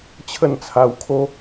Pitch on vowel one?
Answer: falling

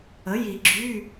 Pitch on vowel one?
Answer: rising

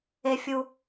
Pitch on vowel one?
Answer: high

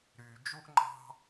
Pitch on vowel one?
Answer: low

